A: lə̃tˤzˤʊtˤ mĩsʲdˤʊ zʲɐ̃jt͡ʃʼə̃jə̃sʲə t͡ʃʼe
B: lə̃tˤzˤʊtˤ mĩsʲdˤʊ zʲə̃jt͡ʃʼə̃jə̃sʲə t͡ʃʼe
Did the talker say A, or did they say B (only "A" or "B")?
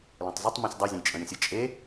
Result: A